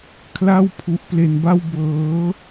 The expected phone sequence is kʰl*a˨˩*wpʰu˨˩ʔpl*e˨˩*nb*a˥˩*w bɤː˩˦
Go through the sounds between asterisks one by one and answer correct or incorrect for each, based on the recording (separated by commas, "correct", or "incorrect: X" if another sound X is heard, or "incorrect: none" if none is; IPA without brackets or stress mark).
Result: incorrect: a˥˩, correct, correct